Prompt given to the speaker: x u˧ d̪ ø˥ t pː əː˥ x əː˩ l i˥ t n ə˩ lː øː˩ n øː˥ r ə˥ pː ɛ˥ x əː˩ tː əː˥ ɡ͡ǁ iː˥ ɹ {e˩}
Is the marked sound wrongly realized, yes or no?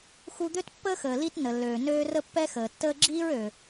yes